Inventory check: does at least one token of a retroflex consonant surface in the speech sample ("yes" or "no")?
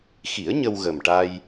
yes